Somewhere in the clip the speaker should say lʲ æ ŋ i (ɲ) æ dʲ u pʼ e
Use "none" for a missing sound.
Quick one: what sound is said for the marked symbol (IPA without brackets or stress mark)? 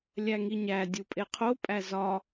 ɲ